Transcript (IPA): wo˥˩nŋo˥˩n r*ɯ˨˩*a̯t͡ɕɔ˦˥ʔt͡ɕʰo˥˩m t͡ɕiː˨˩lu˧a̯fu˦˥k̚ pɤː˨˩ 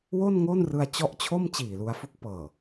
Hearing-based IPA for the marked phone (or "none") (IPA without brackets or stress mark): ɯ˧